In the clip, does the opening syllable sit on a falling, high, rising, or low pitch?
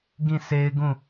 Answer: falling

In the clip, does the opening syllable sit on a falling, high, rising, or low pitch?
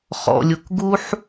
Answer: low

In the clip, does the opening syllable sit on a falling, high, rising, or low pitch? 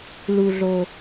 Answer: low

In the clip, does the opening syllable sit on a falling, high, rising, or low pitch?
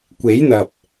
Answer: rising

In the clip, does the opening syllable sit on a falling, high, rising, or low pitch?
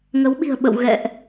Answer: rising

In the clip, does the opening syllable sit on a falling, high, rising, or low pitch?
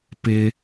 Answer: low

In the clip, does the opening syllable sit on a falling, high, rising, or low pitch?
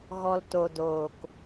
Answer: low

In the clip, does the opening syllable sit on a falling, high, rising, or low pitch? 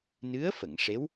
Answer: rising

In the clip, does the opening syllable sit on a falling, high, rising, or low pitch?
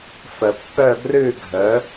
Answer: low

